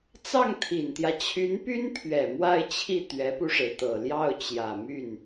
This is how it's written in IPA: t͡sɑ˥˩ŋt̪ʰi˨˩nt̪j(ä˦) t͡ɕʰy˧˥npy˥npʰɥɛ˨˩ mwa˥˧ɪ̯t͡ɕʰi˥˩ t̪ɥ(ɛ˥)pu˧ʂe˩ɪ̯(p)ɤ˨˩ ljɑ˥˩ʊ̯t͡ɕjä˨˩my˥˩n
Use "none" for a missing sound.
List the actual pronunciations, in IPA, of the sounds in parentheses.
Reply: ä˦, ɛ˧˥, t̪

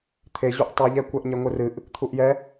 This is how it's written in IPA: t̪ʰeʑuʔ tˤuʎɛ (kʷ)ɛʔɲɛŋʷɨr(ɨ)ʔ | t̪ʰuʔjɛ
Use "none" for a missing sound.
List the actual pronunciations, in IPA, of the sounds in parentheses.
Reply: kʷ, ɨ

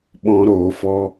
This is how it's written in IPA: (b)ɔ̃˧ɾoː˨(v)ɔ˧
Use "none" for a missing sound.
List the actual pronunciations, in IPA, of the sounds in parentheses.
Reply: ɓ, f

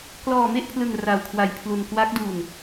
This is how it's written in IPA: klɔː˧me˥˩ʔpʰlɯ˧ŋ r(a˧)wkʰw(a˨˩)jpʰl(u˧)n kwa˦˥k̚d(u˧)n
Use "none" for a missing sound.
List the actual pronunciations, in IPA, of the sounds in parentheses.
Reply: a˧, a˧, u˧, u˧

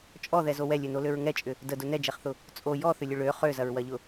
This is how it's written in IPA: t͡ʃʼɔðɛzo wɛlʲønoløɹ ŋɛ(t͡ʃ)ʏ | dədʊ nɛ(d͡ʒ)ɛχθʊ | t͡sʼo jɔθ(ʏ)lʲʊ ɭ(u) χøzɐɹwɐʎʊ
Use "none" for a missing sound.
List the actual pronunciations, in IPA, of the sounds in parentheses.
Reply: t͡ʃʼ, d͡ʒ, ʏ, ø

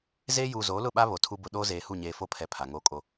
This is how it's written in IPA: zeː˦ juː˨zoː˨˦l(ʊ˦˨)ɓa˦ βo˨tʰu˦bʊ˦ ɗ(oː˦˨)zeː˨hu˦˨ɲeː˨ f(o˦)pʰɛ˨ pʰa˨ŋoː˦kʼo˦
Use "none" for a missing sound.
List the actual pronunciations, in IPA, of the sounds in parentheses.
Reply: ʊ˦˨, oː˦, o˦

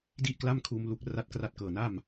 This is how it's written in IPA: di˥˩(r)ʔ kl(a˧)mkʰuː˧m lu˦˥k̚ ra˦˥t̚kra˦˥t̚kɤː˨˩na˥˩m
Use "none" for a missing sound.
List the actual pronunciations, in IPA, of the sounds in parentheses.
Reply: none, a˥˩

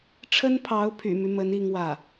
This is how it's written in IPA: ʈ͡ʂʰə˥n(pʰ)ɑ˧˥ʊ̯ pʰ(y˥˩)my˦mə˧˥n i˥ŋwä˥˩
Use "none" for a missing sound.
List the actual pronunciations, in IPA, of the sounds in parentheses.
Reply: pʰ, y̰˨˩

